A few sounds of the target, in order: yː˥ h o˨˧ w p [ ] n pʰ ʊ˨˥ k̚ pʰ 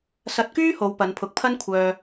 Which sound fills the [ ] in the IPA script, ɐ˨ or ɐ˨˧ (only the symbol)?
ɐ˨˧